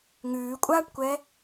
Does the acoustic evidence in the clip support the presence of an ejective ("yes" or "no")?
yes